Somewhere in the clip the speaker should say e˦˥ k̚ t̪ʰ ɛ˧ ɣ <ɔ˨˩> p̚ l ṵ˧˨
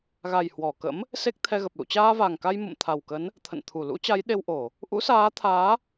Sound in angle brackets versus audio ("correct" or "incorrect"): incorrect